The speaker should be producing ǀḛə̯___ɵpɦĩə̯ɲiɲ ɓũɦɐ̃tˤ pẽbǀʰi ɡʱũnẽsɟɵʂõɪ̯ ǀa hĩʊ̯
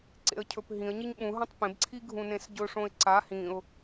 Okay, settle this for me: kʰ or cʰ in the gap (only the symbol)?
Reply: cʰ